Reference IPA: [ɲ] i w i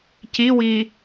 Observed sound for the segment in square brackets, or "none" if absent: c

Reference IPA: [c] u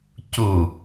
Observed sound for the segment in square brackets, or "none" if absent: c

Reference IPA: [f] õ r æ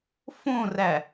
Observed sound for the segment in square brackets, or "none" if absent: f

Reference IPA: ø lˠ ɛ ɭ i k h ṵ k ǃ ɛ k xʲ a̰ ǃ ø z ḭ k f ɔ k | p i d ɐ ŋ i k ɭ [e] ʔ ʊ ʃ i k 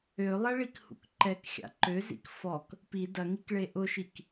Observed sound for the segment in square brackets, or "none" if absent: e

